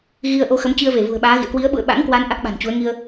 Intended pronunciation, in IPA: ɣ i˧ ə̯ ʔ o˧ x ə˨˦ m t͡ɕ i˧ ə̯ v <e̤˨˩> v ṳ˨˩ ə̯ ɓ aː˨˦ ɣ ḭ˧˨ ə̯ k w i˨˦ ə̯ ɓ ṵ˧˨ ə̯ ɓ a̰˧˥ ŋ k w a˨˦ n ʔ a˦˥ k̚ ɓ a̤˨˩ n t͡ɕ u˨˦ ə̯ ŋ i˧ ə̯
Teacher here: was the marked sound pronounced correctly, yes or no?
no